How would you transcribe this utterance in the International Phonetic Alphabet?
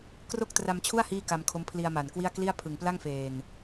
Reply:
kro˥˩k̚tra˧mt͡ɕʰu˥˩a̯ hiː˥˩ka˧mkʰo˦˥m pʰli˧a̯ma˨˩nkwi˥˩a̯ kli˥˩a̯pʰɯ˨˩ŋpla˥˩ŋ feː˨˩n

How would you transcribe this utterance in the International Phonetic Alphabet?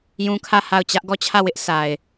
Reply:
jũ˦kʰä˦˨ ha˦˨ʊ̯ t͡ɕä˦ʔ ɡɔ˦˨t͡ɕʰä˦˨wɪ˦ʔ sʰa˨ɪ̯

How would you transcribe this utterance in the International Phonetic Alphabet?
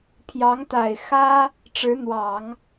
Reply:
pʰjɑ˧˥ŋt̪a˨˩ɪ̯xä˥ | ʈ͡ʂɻ̩˧˥n̪wɑ˨˩˦ŋ

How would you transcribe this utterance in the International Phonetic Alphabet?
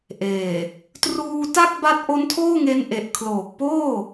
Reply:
ʔeː˨˩ | truː˧ta˥˩k̚ba˦˥t̚ ʔo˦˥ntʰoː˥˩ŋe˦˥nʔe˨˩ʔ kʰloː˨˩k̚poː˥˩

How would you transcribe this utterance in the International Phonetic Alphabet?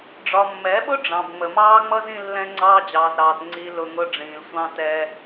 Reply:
ɖ͡ʐɒ˨mːɛ˨˦ɓʊ˦ ɖ͡ʐɑ̃˨bŋ͡mə˨mɑː˦ŋ͡mʌ˦z ĩ˦lːɛ̃˦ŋ͡ǀɑː˦ d͡ʑɑː˨zɾɑː˨t ŋ͡ǀi˨lʊ˨ŋʊ˨ ɖ͡ʐĩː˨lsʷɑ̃˦tɛː˦

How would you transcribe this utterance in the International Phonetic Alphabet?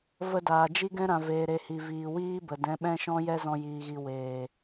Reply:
və˧daː˨ d͡ʒi˦ɡɛ̃˦ ɾã˨veː˨ɾe˨ hi˨viː˨ wiː˦ bə˨dɛ̃˨˦ ɓɛ̃˦ʃɔ̃˦jɛ˦zɔ̃˧ jiː˨ɣi˨ weː˨

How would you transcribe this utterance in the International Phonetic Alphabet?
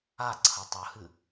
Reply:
aǀʰɐ tˤɵhɨ

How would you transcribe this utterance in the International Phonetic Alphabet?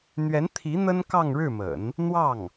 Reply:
n̪ɥɛ˧˥nt̪ʰi˧˥ n̪ə˥nkɑ˥˧ŋɻɻ̩˥˩mə̰˨˩˦n | n̪wɑ˥˩ŋ

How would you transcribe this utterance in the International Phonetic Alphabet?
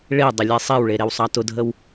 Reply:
ɭe dˤəlʲesˤewɭe ɾewsˤɑtʊdʱəw

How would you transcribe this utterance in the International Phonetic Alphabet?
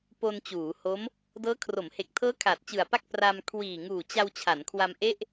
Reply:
po˧nt͡ɕuː˩˦ho˦˥m | dɤː˦˥kʰro˩˦mhe˨˩k̚ tʰɤː˦˥ kʰaː˨˩t̚t͡ɕɯ˨˩a̯pa˥˩k̚ pra˧m kʰwiː˨˩ŋuː˨˩t͡ɕa˧w t͡ɕʰa˩˦nkʰwa˧mʔe˥˩ʔ

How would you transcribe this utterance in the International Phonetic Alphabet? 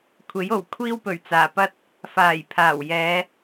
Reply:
kʷʰe˨˥jo˨˩w kʷʰiː˥wpɵ˨˩ɥt͡saː˨˩pɐ˥t̚ | faː˨˩jpʰaː˨˩wjɛː˨˧

